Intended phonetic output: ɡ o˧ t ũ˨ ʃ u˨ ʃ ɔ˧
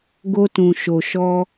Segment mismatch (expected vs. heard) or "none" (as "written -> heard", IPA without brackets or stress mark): u˨ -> o˨